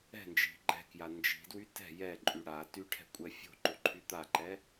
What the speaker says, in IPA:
ɛ̤ n d͡ʒ i̤ ɡ͡ǃ ɛ̤ k j a n d͡ʒ i̤ d w y t ɛ̤ j ɛ ǃʼ y ɽ a t y ʈʰ ɛ̤ kʷʼ ɛ fʲ o̤ ǃ o ǃʰ y t̪ a ǃ ɛ

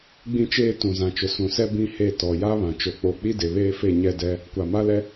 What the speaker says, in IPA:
ɡ͡b ĩ˦ t͡ʃ eː˦ t ũ˨ z ã˨ t͡ʃ ʊ˨ s ũ˨ s ɛ˦ b ĩ˦ h e˦˨ t ɔ˨ j a˦ β ã˨ t͡ʃ o˨ k͡p o˨ k͡p i˦ d e˨ β eː˦ f e˦˨ ɲ ɛ˦ d ɛ˦ | kʷ a˨ m a˦ l ɛ˦

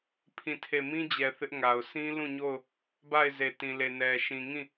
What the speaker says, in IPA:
pʰ ĩ˦˨ tʰ e˦˨ m ĩ˦ d͡ʑ ɛ˨ θ ɪ˦ ʔ ŋ a˨ ʊ̯ s ĩ˦ l ũ˦˨ ɲ o˦˨ ʊ̯ | b a˦˨ ɪ̯ z e˨ t ĩ˨ l e˨ n ɛ˨ ʃ ĩ˨ ŋ ĩ˦˨

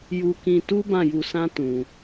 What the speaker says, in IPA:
j u˧ k ĩ˧ t u˦ b ã˦˨ j u˧ s ã˦ t ũ˧

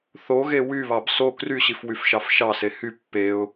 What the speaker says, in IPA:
θ o ɣ e w y β ɑ b s o k r y ɕ i f w y f ʃ ɑ f ʃ ɑ s e h y pː e ʊ̯

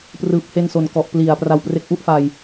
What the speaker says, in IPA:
p r ɯː˨˩ p̚ h e˧ n s o˨˩ n k ɔ˨˩ ʔ p l i˨˩ a̯ p r a˧ w p r e˦˥ k̚ ʔ u˥˩ ʔ f a˧ j

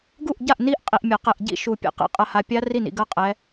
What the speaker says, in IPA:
ɡ u˥˨ ʔ ɟ a˥˨ ʔ n i˦˥ ʔ qʼ i˨ ʔ mʲ ɐ˨˩˦ q ɛ˨ ʔ ɟ ḭ˥˨ ʃ u˨˩˦ pʲ ɛ̰˨ q ḭ˨˦ qʼ ɐ˨ h a˨ pʲ a˦˥ r i˥˨ n ḭ˨ ɡ ɐ˥˨ qʼ ɛ˨˦

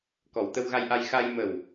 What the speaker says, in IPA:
k ɔ˨˩ w t̪ ə˧ w ɣ a˧ j ʔ a˧ j x a˧ j m ə˨˩ w

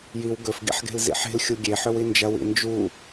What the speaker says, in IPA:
j i w ɡ ɵ f ɡ ḭ ħ ɡ e̤ l z ḭ ħ e̤ l xʲ u ɡʲ e ħ ɵ w i n d͡ʒ ɐ w ḭ n d͡ʒ u

